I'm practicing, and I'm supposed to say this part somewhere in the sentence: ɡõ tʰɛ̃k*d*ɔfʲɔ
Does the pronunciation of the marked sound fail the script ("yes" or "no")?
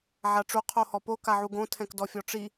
no